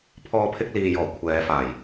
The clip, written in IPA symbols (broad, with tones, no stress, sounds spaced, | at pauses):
pʰ ɔː˧ pʰ ɪ˧ k̚ l iː˨ j ɔː˨˩ kʷʰ ɛː˨˧ f aː˨˩ j